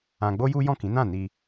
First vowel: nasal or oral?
nasal